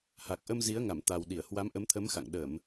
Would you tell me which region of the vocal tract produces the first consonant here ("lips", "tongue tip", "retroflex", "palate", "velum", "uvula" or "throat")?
throat